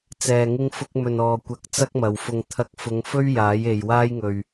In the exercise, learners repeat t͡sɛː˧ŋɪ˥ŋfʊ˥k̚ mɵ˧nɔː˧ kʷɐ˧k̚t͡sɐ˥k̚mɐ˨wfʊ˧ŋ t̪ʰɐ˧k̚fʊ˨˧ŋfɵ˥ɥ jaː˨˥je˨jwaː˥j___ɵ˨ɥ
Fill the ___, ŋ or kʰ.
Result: ŋ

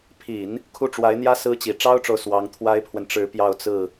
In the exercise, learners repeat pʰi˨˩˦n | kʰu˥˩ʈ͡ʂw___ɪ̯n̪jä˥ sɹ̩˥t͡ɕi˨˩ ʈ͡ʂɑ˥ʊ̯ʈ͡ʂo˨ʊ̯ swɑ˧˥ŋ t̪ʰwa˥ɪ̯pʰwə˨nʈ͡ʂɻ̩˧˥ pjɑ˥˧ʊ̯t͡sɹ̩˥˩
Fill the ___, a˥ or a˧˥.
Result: a˧˥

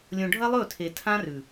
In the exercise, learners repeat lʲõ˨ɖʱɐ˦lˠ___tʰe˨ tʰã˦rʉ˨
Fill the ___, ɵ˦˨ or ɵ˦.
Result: ɵ˦˨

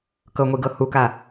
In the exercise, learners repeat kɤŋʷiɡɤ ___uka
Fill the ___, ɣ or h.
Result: h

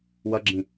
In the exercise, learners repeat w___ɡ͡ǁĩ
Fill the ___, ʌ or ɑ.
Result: ʌ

